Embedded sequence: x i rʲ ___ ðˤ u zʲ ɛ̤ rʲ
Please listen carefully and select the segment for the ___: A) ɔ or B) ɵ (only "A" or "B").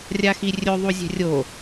B